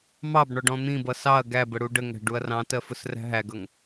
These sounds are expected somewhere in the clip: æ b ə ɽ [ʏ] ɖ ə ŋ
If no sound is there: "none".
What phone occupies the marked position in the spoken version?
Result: u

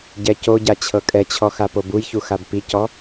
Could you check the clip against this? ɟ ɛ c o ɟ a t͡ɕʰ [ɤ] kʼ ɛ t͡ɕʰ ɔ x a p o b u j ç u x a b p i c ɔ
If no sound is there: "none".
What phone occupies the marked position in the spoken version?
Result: ɤ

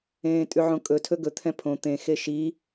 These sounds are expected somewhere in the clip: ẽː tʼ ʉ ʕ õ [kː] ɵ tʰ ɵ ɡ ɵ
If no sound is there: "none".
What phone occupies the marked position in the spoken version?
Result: kʼ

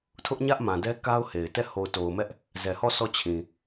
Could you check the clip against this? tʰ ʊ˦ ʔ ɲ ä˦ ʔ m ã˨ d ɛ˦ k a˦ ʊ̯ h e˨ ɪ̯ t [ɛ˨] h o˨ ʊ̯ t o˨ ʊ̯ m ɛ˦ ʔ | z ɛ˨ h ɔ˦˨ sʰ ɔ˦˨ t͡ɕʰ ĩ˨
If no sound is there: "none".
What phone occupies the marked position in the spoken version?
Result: ɛ˦˨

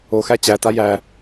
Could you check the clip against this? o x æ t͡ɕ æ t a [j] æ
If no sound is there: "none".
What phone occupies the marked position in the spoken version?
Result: j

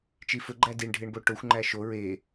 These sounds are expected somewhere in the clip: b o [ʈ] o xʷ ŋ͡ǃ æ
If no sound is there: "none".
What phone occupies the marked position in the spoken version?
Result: ʈ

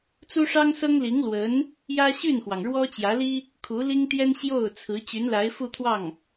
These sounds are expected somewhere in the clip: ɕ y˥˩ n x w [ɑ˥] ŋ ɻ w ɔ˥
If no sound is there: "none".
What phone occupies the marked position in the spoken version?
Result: ɑ˩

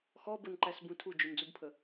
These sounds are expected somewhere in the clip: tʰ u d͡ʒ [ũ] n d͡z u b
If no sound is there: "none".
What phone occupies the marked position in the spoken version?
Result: u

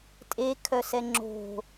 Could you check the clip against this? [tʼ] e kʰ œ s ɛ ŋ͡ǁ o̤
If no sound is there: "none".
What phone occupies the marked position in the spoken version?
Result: tʼ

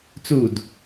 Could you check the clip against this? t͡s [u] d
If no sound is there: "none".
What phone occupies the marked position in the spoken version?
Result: u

